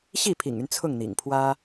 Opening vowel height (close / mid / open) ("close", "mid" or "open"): close